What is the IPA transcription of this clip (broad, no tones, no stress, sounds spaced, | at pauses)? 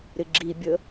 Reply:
ɾ ɪ ɡ͡ǁ i bʲ ə